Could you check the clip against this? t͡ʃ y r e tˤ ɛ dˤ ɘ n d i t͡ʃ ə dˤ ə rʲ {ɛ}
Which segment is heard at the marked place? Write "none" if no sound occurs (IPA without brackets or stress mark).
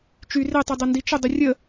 ə